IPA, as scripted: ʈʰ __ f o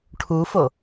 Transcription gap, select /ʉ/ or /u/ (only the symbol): u